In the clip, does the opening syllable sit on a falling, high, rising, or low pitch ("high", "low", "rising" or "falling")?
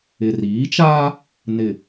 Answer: low